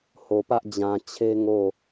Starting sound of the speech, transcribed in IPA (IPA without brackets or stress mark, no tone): h